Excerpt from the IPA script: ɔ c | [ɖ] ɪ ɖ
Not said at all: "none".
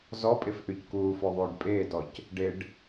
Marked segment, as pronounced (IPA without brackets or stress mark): ɖ